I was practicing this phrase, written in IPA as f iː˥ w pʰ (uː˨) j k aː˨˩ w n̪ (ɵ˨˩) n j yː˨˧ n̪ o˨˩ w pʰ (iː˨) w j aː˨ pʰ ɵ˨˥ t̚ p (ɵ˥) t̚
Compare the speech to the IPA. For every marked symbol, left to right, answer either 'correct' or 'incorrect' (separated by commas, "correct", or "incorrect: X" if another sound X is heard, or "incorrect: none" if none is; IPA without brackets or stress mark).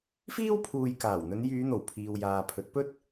correct, incorrect: ɵ˨˧, correct, correct